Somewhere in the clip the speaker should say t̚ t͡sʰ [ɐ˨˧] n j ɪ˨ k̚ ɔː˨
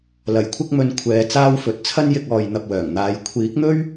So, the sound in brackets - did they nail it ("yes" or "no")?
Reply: no